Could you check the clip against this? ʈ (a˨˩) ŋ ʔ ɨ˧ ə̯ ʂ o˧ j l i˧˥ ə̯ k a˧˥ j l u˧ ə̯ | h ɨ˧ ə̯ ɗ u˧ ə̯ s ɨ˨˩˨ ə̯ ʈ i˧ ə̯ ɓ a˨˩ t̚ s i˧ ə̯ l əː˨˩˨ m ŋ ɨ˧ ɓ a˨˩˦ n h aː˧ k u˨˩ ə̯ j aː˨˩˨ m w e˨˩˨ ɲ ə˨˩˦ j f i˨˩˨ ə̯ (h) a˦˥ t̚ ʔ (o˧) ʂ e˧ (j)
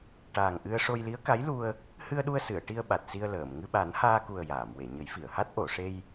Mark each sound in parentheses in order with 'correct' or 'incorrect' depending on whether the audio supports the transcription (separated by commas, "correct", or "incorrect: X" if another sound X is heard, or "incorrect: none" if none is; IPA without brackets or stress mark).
incorrect: aː˨˩, correct, incorrect: o˨˩˨, correct